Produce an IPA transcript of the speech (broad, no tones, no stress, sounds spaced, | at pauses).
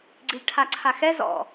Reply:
ɡ͡ǀ i ʎ ʈʰ a ǀʰ a x ɛ z ɔ̰